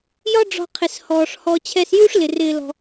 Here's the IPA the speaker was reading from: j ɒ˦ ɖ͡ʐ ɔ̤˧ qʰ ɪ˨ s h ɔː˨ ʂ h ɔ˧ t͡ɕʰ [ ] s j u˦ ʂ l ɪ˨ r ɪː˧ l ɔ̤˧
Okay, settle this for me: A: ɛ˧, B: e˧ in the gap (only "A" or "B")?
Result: A